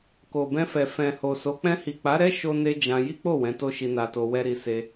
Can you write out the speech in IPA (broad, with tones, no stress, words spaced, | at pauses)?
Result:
ko˨bɛ̃˧fɛ˨ fɛ̃˨ho˨so˨˦ k͡pɛ̃˧hi˨k͡pa˨˦ɾɛ˦ ʃo˦ne˦d͡ʒã˧ ji˦k͡po˦˨ wɛ̃˨˦to˦ʃi˧ na˧to˧wɛ˦ɾi˧ se˧